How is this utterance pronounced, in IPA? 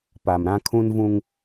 p a˨ m ɾ ã˦ kʰ ũ˦ n v ũ˦ ŋ

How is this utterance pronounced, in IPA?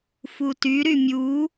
f u t y ɾ y mʲ u

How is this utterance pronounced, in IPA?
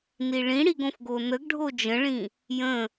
n i ɭ ĩ ɽ i ɡ õ f ɡ o n ə ɡ ɖʱ o d͡ʒ ə̃ ɭ ĩ | j ə̃

